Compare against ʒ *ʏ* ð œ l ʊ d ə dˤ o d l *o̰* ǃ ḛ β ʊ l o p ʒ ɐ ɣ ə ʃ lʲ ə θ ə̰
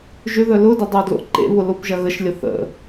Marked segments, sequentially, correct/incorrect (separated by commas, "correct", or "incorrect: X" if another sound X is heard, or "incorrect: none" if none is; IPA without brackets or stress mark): correct, correct